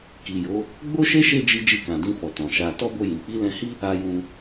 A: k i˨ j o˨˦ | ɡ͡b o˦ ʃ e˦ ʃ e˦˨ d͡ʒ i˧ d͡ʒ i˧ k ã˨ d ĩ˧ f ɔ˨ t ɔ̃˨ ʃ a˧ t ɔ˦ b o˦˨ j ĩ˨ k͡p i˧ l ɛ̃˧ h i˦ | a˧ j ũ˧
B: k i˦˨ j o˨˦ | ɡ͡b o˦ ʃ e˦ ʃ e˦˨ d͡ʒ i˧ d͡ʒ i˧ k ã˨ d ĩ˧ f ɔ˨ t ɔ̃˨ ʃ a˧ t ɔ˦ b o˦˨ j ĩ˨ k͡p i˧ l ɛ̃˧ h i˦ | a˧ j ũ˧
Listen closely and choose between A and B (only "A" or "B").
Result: A